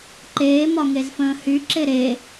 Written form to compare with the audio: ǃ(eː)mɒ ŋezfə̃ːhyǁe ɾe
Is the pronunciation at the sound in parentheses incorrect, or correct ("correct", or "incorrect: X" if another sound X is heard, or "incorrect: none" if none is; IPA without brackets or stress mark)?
correct